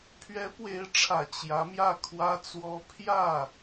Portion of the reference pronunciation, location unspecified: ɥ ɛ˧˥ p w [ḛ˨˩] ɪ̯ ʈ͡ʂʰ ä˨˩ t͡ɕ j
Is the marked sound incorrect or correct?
incorrect